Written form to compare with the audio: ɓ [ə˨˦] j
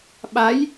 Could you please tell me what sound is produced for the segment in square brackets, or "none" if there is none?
a˨˦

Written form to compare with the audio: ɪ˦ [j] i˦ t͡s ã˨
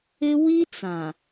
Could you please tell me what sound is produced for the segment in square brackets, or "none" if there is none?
w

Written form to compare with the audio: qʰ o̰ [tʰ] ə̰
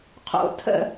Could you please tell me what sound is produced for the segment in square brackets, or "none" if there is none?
tʰ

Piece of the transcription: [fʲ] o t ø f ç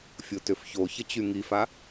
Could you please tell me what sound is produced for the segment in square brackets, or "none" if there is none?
fʲ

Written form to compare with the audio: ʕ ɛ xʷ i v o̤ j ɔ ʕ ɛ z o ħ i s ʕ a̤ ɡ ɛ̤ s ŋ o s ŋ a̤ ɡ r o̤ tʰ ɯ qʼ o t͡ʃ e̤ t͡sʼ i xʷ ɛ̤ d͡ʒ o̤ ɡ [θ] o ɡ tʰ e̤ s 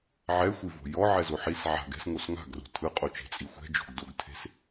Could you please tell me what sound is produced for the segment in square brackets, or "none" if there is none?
d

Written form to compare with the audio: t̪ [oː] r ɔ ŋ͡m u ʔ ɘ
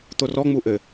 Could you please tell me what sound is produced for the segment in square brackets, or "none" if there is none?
o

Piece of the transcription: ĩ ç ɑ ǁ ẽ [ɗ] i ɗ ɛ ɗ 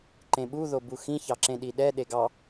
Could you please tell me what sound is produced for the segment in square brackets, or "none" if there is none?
ɗ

